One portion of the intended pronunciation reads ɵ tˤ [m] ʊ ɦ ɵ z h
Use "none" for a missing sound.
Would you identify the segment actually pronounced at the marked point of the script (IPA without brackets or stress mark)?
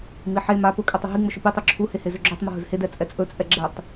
m